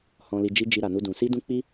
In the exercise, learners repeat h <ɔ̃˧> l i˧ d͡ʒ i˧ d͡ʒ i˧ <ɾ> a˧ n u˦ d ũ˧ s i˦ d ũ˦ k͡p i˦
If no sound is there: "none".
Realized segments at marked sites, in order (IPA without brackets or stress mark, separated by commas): ɔ̃˧, ɾ